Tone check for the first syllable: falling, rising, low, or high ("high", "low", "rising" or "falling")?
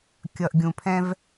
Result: low